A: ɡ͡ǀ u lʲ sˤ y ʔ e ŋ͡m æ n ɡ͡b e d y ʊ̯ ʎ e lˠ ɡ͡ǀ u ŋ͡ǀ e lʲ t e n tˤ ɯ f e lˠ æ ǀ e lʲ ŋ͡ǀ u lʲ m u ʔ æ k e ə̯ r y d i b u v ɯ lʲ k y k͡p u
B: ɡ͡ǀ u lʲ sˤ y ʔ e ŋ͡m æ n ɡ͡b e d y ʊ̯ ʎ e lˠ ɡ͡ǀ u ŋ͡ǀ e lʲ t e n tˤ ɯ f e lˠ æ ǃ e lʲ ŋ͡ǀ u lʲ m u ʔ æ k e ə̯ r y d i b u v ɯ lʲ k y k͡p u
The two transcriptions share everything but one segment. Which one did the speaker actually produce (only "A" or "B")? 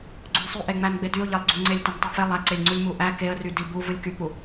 A